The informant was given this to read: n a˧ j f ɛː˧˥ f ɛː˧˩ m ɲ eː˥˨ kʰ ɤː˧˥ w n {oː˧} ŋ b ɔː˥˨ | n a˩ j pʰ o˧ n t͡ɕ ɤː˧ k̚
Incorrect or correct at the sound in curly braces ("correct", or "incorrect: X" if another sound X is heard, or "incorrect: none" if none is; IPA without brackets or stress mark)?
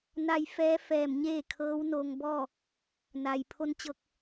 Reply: correct